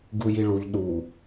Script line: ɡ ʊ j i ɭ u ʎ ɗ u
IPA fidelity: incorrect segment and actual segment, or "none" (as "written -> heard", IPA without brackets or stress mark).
ʊ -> u